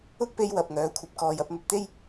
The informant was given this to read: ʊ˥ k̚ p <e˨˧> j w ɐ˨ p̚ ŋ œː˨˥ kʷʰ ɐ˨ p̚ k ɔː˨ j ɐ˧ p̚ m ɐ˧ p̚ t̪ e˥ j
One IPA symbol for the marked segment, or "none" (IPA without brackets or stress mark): e˧